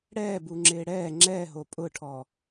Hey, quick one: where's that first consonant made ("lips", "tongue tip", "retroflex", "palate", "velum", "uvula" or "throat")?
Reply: retroflex